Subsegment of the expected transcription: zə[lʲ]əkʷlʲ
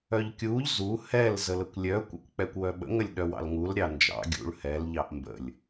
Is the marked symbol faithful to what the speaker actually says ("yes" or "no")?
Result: no